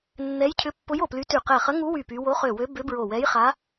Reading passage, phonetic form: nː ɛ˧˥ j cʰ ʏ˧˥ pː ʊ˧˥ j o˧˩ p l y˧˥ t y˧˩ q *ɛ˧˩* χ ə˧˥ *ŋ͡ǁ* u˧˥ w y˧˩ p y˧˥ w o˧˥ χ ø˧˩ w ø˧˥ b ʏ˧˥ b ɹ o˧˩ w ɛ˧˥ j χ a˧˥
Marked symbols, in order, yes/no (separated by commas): yes, no